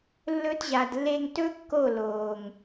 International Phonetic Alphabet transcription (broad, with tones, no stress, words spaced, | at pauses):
lːɵ˧tʑa˨dlːe˧ŋtɵ˦ kːo˦˨loː˨ŋ